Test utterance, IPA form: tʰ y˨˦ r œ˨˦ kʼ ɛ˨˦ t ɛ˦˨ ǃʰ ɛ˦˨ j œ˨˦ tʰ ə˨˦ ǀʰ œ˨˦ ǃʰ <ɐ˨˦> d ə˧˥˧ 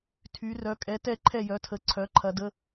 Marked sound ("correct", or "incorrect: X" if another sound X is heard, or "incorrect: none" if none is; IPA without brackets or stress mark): correct